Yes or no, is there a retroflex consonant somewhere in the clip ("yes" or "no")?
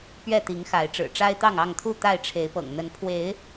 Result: yes